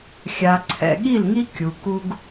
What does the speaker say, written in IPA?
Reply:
xʲa˨ǀʰɛ̰˨ ɠi˦˨lŋi˦ kʲu˨ku˦ɡ

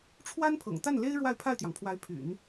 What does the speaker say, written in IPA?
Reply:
ʈ͡ʂʰwa˥npʰɤ̰˨˩ŋt̪a˥˩nle˥ɪ̯ ɻwa˥˧ɪ̯pʰa˥˩ɪ̯t̪jɑ˩ŋpʰwa˧˥ɪ̯ pʰy̰˨˩˦n

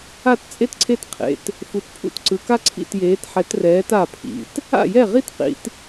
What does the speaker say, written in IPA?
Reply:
a˥˨tt͡sʼe˥tǀʰe˥˨t qʰḛ˩˧˩t | fu˨˦tpʰṵ˥˨t ǀɯ˨˦ ka˥ǀʰḭ˥˨tjeː˨˦t ħɛ˨˦trɛː˨˦t a˥˨pʰḭ˩˧˩t | a̰˥˨jɛ˥˨ʁi˥t qḭ˨˦t

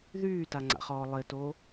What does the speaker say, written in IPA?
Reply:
ðyːtaŋ͡ǀa̰χɔː lˠɪto

